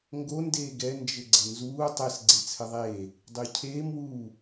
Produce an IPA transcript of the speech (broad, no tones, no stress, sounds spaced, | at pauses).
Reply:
ŋ ɡ o n d eː ɡ ɛ n d͡ʒ ɘ ɡ͡ǀ ə n z uː tˤ ɘ s ɡ͡ǀ e t͡sʰ ɘ ðˤ eː | dˤ ʏː cʰ eː m w uː